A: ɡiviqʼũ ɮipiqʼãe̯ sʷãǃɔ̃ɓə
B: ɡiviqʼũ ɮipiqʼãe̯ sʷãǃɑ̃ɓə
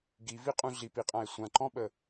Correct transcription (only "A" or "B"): A